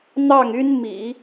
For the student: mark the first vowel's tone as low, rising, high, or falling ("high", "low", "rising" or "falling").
falling